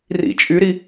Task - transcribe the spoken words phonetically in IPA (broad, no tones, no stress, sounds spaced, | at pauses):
r ḭ t͡ʃʼ y ɾ i